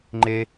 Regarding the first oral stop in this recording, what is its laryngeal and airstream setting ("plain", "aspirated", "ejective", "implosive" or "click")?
click